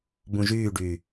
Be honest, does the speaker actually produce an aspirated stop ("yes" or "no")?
no